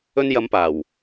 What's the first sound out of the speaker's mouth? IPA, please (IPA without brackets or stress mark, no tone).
ɵ